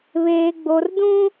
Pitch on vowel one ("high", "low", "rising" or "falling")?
high